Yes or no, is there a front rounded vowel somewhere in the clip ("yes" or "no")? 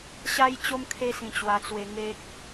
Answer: no